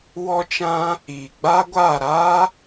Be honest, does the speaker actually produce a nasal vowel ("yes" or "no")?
yes